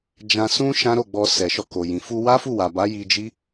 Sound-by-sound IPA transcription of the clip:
d͡ʒ ã˧ s ũ˦ ʃ ã˦ ɾ o˦˨ ɡ͡b ɔ˧ s ɛ˨ ʃ ɔ˧ k o˨ j ĩ˨ f u˧ w a˦ f u˦˨ w a˨ b a˨˦ j i˧ d͡ʒ i˦

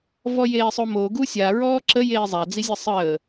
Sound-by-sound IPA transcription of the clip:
v ɔ j eː sˤ o m o ɡ u sʲ a ɹ ɔː ǁ ə j eː zˤ a d͡z i zʲ ɛ sˤ əː

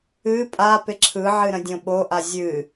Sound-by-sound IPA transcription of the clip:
ɨ pʼ a p ɪ ǁʰ ɯ ʕ ɨ ɾ ə̃ dʲ õ ɓ o ʔ a zʲ ɨ

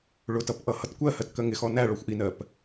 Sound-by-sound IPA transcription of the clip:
ɭ ʊ t ʌ p ʔ ʌ h ʌ t kʷ ɜ h ɜ t k ɜ ŋ ɪ x ɔ n æ ɭ ɔ xʷ ʔ i n ɜ p

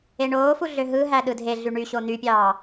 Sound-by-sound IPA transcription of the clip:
e ɳ oː f u ɮ ø ɦ ɯ ɦ æ ɗ ɯ dʱ e ɮ y ɳ y ɕ o n̪ y pʲ ɑː

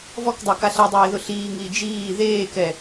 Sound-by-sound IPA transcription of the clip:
v ɔ k dˤ a k a ɬ ɛ dˤ eː ð ʊ ɬ iː ŋ i d͡ʒ iː ð eː k ɛ

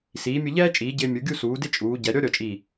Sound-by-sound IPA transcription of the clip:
s iː˩˧ mʲ ʊ˧ ʎ ɛː˥ t͡ʃʼ iː˩˧ ɟ ɪː˧ mʲ u˩˧ ɡʲ u˥˧ s uː˩˧ d ɪ˥˧ t͡ʃʼ uː˩˧ ɟ ɛ˩˧ ɾʲ ɔ˥ ɾʲ ɔ˧˩ t͡ʃʼ iː˧˩

